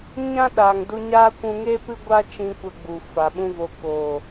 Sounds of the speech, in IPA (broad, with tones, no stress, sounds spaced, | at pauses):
ɲ ã˦ ɗ aː˨ ŋ d u˧ ɲ aː˦ kʷ ũ˧ ŋ e˦ p ɨ˦ ɡʷ a˦ t͡ʃ ĩ˧ kʷ ə˧ ɡ͡b u˨ f a˨ ɓ ũ˦ v o˧ k oː˨